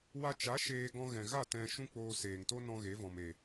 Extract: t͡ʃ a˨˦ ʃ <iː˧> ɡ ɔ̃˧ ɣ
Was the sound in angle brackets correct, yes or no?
no